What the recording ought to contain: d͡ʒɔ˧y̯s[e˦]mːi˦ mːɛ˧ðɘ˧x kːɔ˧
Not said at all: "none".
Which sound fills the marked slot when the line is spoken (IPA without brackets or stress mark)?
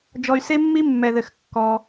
e˦